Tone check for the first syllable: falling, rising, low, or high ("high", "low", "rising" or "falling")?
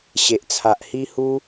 low